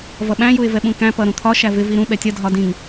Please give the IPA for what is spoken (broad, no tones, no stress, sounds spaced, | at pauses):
v ʌ ɓ æ̃ j u ɪ̯ v ɛ ɓ ũ k æ̃ p ʌ ɾ ũ t̪ʰ ɒ ʃ æ v ɪ v i ɾ ũ ɓ ɛ tʲ ʌ dʱ ɒ d ĩ ŋ